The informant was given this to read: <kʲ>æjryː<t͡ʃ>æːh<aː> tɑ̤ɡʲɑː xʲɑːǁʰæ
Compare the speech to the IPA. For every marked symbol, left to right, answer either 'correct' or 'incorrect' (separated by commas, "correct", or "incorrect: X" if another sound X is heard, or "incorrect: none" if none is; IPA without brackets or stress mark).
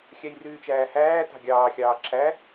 incorrect: xʲ, correct, incorrect: æː